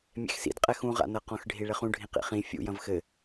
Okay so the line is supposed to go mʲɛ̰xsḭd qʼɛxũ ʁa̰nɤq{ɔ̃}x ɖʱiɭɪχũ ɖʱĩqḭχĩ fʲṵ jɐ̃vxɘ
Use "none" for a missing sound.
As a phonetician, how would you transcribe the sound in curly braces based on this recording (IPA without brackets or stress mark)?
ɔ̃